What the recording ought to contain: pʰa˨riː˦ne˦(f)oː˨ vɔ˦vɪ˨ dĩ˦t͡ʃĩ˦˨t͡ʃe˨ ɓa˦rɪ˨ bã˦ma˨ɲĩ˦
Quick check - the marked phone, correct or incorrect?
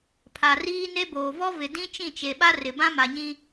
incorrect